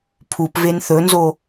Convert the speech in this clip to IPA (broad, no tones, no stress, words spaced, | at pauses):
pʰupven θɵnzo